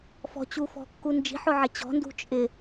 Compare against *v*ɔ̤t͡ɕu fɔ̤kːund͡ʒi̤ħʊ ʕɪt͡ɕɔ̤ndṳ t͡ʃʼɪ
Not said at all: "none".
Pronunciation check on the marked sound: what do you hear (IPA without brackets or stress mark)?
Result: f